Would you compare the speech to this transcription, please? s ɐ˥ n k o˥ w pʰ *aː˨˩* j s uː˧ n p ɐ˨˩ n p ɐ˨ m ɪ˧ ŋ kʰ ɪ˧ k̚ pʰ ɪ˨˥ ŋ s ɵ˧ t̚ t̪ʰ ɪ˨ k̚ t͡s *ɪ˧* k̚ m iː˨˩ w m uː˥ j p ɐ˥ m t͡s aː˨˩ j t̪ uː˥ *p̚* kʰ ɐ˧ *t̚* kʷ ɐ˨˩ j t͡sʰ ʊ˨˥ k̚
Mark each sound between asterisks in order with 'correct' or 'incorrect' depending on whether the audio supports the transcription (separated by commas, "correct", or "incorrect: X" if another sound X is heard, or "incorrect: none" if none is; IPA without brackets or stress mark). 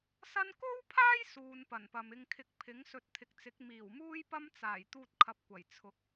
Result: incorrect: aː˥, incorrect: ɪ˨˥, incorrect: t̚, incorrect: p̚